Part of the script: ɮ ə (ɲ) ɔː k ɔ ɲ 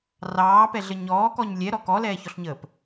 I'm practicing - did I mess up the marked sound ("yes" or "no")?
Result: no